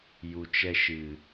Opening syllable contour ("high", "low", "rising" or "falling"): low